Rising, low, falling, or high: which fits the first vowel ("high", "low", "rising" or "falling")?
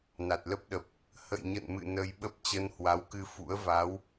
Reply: low